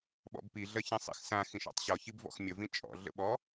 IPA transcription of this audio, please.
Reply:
ɓ ɔ̰ b p i ɮ ɜ ç ĩ sˤ ḭ x s ã x ĩ ʃ ɔ̰ tˤ ɕ ɔ ç i b v ɔ̰ x mʲ ə v ĩ t͡ʃʼ ɔ̰ ɮ ə̰ ɓ ɔ

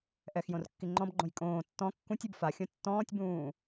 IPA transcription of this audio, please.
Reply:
ʔ ɛ x j õ r kː i ŋ͡ǃ ɔ̃ b ɡ͡ǃ õ j kʼ õː tː ɔ̃ kː ũ tʲ u b f a xʲ õ tː ɔ̃ː tʲ b ũː

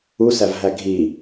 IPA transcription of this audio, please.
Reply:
u s æ v ɦ æ ɡʱ iː

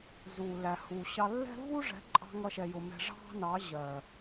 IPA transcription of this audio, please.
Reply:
z u˨ l æ˨ h u˨ ɕ ɑ˧ lː ɛ̤˦ v u˦ ʐ ɛ̤˨˦ ǃʼ ɑ̤˧ ŋ ʌ˦ ʃ ɛ˧ j ʊ˧ m ɛ̤˧ ʐ ɑ̤˦ n ɑ˨˦ ʑ ɜ˨

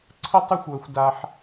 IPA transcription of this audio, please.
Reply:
ǀʰ ə˥ tˤ ə˥ xʷ w ə˦ xʷ d a˦ ħ

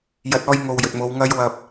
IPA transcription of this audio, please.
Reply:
j ɐ˨˥ t̚ ɔː˧ j ŋ o˨ w j ɵ˨ t̚ m o˨˧ w ŋ ɐ˧ j w ɐ˨ p̚

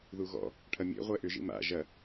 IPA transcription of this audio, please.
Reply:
ð u ɣ ɔ̰ | ʈʰ ɐ mʲ ḛ ʁʷ ɛ ʔ ʏ ʒ ḭ m a̰ ʒ ɐ

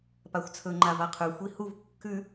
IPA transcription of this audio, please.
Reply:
p a xʷ t͡sʰ ɵ ŋ͡ǃ a v a qʰ ʉ xʷ i h u v kː ʉ

